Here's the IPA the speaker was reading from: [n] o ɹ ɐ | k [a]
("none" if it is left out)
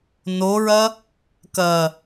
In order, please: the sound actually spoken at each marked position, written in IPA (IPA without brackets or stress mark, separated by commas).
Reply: n, ɐ